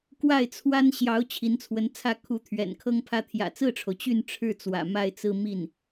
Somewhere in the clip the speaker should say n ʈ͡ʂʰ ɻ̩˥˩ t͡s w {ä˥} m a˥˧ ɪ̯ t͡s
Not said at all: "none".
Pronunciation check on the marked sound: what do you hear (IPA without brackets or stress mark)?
ä̰˨˩